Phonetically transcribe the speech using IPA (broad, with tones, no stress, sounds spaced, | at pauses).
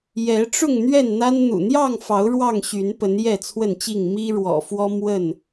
j ɛ˨˦ ʈ͡ʂ ʊ˥˨ ŋ n̪ ɥ ɛ˥˨ n n̪ a˦ n n̪ ṵ˨˩ n̪ j ɑ˥˨ ŋ f ɑ˨˦ ʊ̯ ɻ w ɑ˥˨ ŋ ɕ y˨˦ n p ə˨˦ n j ɛ˥˨ t͡sʰ w ə˥˨ n t͡ɕ i˥˨ ŋ m i˦ ɻ w ɔ̰˨˩ f w ɔ˦ m w ə˥˨ n